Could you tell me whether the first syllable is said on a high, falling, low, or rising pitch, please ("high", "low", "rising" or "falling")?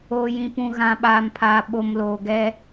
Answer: low